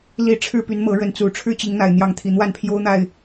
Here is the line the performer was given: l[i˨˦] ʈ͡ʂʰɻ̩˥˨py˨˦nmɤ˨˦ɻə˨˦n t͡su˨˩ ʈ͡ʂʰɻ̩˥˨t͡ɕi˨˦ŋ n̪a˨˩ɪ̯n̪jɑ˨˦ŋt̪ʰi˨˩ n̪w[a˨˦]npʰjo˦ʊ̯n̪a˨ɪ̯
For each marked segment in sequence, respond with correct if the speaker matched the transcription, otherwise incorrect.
correct, incorrect

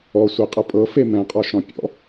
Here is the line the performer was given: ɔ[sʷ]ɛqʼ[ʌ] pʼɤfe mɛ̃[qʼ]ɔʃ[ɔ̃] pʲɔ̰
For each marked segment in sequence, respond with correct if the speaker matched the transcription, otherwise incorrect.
correct, correct, correct, correct

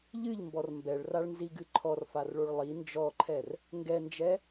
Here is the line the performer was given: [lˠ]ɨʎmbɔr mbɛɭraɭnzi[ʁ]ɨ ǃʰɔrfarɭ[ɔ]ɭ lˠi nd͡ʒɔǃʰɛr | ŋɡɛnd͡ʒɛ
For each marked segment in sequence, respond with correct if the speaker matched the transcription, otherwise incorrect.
incorrect, incorrect, incorrect

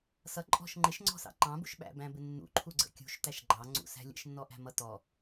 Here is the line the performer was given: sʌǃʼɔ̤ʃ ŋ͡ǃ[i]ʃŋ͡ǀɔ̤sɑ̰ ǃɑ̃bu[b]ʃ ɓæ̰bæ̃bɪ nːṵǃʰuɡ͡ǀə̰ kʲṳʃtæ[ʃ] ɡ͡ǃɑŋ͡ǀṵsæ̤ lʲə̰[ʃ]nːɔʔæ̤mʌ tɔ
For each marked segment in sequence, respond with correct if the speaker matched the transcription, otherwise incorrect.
incorrect, incorrect, correct, correct

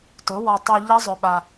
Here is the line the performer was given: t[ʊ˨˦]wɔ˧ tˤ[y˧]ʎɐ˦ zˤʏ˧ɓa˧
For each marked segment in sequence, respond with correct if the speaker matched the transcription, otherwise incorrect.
correct, correct

